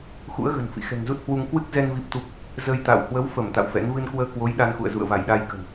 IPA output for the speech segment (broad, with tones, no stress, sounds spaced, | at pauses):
x ṵ˧˥ ə̯ ɣ ə̤˨˩ n f ḭ˧˨ x ɛ̤˨˩ ŋ z u˦˥ t̚ h w u˧ ŋ k w ɨ˦˥ k̚ z ɛ˧ n v i˦˥ p̚ t̪ u˦˥ p̚ | z ə˧ j t̪ a̰˧˨ w h w ə˨˦ w f ə˧˩ m t̪ a̰˧˨ w f ɛ̰˧˥ n v ɨ˧ n k w əː˧ k w o˨˦ j ɗ a˧ n x ṵ˧˨ ə̯ z ṵ˧˨ ə̯ v a˧˩ j ɗ a˧ j k ə̤˨˩ n